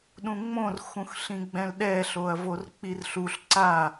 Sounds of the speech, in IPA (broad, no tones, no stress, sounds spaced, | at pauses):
ɗ ũ ŋ͡m õ r x ũ x ɬ ĩ ɡ͡b ɛ̃ l ɗ ɛ ɬ o ɐ̯ v o r k͡p i r ɬ u ɬ ǀ a